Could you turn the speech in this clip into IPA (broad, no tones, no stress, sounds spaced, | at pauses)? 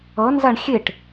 ʌ n z a ɳ xʲ e ʈ